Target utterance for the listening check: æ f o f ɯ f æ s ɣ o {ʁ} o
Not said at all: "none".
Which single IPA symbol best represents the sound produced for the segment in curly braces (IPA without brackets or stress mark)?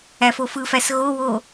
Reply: w